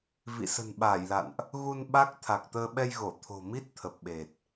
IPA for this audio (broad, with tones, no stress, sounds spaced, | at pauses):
v ḭ˧˨ s ə̤˨˩ n ɓ aː˧˩ j l a̰˧˨ n ʔ | ɣ u˧ n ɓ a˦˥ k̚ t̪ʰ a˨˩ k̚ t̪ əː˧ ɓ ɛ˧ j ɣ o˧˩ t̪ʰ o̤˨˩ m i˦˥ t̚ t̪ʰ ə˨˩ p̚ ɓ e˨˩ t̚